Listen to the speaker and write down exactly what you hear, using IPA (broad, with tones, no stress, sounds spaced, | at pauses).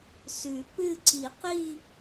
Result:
s ʉ˨˩˦ p ɨ˥˧ ǀ i˨˩˦ q i˥˧